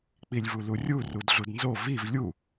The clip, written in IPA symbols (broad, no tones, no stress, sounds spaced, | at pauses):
k͡p i lʲ v u l u rʲ u r u d ɮ u d n z o v i v lʲ u